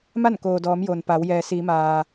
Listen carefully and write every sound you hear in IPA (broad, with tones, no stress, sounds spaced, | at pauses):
m a˥˨ n k oː˩ d ɔː˩˧ m j o˩ n p a˩˧ w j ɛː˩ s iː˩˧ m aː˩